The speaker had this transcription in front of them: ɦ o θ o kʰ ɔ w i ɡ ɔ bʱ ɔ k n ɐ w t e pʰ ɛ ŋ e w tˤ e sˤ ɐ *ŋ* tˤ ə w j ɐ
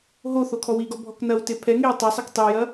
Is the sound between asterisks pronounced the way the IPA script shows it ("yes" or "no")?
no